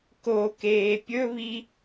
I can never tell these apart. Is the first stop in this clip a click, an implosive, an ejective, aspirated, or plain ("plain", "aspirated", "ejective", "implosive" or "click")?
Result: plain